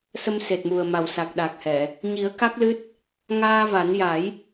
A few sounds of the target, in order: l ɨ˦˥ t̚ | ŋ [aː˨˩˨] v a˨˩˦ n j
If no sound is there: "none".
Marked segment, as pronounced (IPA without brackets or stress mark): aː˧